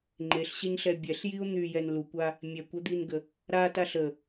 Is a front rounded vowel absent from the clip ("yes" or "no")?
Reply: no